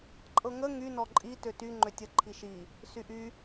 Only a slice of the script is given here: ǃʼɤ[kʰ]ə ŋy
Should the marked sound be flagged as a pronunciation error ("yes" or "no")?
yes